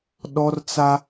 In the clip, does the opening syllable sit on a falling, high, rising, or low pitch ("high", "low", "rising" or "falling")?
high